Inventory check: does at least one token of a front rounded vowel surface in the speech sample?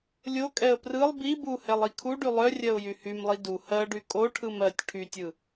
yes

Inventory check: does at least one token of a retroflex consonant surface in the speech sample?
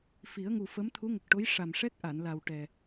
yes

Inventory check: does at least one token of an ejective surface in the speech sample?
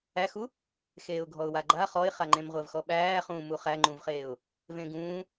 no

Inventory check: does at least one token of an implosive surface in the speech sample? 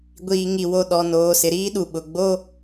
yes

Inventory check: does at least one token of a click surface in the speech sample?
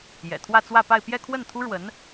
no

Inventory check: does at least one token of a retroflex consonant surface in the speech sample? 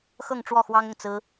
yes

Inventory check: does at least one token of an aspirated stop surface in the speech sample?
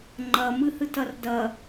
no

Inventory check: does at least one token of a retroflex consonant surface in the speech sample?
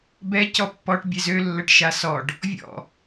yes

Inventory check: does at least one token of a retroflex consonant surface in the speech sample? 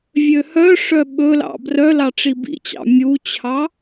yes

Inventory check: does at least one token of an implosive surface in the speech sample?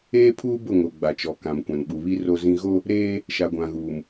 yes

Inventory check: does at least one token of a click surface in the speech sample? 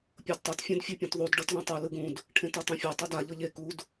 no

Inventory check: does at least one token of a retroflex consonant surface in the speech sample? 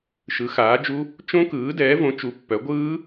no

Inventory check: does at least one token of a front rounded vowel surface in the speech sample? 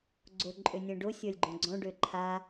yes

